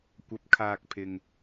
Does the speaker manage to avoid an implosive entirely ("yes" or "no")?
yes